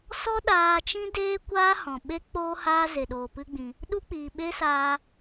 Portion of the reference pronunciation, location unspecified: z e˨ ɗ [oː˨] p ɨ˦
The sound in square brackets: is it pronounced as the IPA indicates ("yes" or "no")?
yes